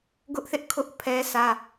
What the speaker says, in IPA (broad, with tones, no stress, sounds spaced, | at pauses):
ɡ ʊ˦ ʔ θ ɪ˦ ʔ kʰ ʊ˦ ʔ pʰ ɛ˦ sʰ ä˦